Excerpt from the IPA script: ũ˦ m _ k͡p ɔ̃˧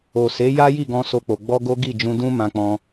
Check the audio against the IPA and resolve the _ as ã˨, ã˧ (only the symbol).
ã˧